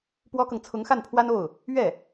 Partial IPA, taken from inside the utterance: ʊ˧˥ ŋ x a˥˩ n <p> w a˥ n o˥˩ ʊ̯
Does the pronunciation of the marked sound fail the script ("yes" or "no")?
yes